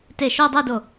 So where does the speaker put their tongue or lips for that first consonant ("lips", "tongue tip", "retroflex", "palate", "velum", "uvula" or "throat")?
tongue tip